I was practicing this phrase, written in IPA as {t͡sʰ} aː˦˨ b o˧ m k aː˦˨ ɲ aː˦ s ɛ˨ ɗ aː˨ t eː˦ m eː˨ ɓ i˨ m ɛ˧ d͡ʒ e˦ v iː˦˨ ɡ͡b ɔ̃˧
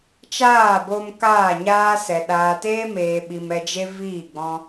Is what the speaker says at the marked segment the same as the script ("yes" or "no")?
no